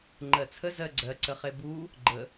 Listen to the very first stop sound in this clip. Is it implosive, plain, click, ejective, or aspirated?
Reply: click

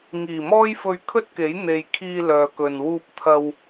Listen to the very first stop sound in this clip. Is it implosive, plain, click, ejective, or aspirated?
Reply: aspirated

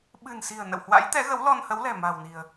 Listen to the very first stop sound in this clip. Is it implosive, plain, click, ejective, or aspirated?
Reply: implosive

